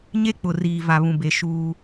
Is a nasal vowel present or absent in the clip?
present